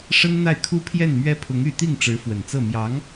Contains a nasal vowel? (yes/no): no